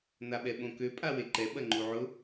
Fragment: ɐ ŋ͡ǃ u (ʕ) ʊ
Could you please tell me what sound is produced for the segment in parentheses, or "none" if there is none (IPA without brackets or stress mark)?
ʕ